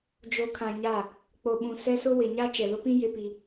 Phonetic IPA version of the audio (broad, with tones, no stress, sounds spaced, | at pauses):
d͡ʒ o˨ kʰ ã˨ ɲ a˦˨ | k͡p o˨ ɓ ũ˨ s ɛ˦ s ʊ˦ w ɪ˨ ɲ a˦ t͡ʃ ɛ˨ l ʊ˦ p ĩ˦ j ɪ˦ p i˦